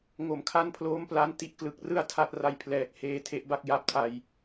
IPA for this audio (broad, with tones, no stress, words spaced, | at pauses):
ŋo˩˦mkʰa˧npʰloː˦˥m pla˦˥n ti˦˥ʔklɯ˨˩k̚rɯ˥˩a̯ tʰa˥˩t̚ra˧jpʰlɛː˨˩k̚ heː˧tʰe˦˥ʔba˥˩k̚ ja˦˥p̚tʰa˧j